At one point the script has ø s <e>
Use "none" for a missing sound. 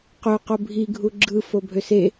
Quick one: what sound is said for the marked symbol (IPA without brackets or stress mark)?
e